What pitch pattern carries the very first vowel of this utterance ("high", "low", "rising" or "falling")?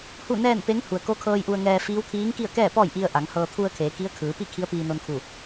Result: falling